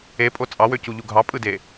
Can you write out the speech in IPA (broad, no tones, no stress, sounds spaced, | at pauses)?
e pʼ o t͡sʼ ɑ w ø c u ʎ u ɡʱ ɑ pʼ ɯ d e